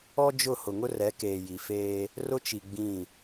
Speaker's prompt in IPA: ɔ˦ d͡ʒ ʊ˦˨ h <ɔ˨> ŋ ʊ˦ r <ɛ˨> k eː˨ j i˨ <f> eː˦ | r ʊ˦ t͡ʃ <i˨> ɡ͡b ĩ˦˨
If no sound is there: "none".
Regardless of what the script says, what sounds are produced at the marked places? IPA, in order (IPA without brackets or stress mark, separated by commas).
ʊ˨, ɛ˨˦, f, i˨